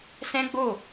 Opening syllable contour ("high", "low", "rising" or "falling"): high